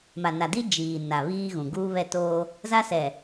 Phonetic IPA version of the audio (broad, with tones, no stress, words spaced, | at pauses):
ma˨na˨ di˦ d͡ʒiː˨ na˨βiː˦ɣũ˨ ɡuː˦βɛ˦˨toː˦ | za˦sɛ˨